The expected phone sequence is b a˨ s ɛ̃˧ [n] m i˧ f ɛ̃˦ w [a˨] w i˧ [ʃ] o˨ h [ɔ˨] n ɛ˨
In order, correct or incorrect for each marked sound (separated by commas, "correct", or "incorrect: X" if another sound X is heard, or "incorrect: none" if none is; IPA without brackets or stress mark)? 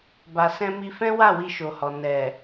incorrect: none, incorrect: a˦˨, correct, correct